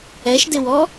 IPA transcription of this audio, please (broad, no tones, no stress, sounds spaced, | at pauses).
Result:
ɛ ʃ d ɪ w ɔ